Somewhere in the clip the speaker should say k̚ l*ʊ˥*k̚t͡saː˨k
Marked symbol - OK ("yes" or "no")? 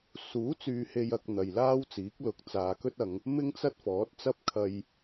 no